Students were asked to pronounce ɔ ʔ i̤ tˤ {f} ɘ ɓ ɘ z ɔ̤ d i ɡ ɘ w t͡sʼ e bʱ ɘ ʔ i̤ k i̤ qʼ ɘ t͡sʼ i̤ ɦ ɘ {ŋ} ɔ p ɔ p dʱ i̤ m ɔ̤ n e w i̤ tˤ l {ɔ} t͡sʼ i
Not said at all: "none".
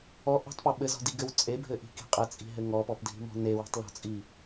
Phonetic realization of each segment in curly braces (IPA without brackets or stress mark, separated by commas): p, ŋ, ɔ̤